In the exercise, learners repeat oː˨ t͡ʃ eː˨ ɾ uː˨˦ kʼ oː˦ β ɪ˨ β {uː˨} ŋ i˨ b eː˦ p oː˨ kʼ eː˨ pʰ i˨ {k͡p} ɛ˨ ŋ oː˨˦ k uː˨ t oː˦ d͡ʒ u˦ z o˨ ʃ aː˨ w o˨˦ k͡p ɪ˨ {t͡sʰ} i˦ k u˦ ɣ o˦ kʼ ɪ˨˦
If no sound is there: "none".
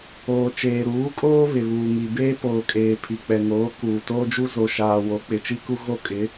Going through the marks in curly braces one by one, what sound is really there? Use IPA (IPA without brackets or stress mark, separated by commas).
uː˨, k͡p, t͡ʃ